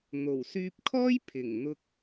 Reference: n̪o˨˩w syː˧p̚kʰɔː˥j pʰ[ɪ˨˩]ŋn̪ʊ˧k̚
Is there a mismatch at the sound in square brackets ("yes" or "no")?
no